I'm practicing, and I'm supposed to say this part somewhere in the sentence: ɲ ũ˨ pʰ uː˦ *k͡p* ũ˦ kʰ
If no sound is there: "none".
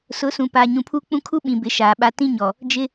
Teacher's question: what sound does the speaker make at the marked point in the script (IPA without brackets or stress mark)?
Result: k͡p